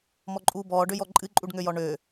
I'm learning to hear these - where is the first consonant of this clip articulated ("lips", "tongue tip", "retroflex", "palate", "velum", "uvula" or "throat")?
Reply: lips